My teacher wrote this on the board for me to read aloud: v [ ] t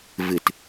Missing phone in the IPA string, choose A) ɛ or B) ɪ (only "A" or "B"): B